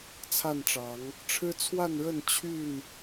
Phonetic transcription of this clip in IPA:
t͡sʰ a˥˨ n ʈ͡ʂ ɑ˨˦ ŋ | ʈ͡ʂʰ ɻ̩˦ t͡sʰ w a˥˨ n ɻ ə˥˨ n t͡ɕʰ y˥˨ n

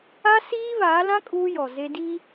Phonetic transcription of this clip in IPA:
a˦ s iː˦ β aː˨˦ l ã˦ kʼ uː˦ j ɔ˨ z e˦ d i˦

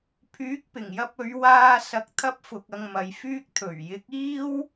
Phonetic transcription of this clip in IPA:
pʰ yː˨˥ k̚ p ɪ˨˩ ŋ j ɐ˧ p̚ ɵ˨˧ ɥ w aː˧ s ɐ˨˥ k̚ t̪ʰ ɐ˥ p̚ f ʊ˧ k̚ ɐ˧ ŋ m ɐ˨˧ j f yː˥ k̚ t̪ʰ ɵ˨˩ ɥ j ɪ˨˥ k̚ iː˥ w

